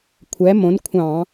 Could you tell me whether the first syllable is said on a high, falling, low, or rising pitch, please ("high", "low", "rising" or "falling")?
rising